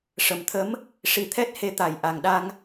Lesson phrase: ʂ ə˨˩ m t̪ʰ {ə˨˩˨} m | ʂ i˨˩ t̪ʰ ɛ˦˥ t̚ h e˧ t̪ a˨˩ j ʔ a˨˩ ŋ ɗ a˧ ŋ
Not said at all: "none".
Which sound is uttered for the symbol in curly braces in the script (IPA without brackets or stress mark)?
ə˧˥